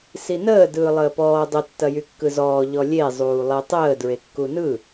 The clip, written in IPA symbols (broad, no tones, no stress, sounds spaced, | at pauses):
s i n əː d ɯː lˠ əː p ɔː dˤ ə tː ɐ j y kː ɯ z ɔː ʎ ɔ lʲ e zˤ uː lˠ e tˤ əː d ɹ e kː u n ɯ